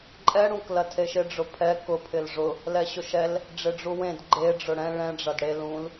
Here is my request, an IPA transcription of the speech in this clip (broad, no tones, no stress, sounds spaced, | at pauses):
ǃʼ ɛ ɽ ũ k l ɐ tʰ e ʃ ɪ ɖ͡ʐ ʊ pʰ ɛ k ʊ pʰ ɪ l ʐ ʊ | l ɛ ɕ ʊ ʃ ɛ l | ɖ͡ʐ ɪ ɖ͡ʐ u w ẽ d ɡ͡ǃ e ɖ͡ʐ ʊ ɽ ɛ̃ ɭ ɛ̃ ɖ͡ʐ ɐ d ɽ e l ũ l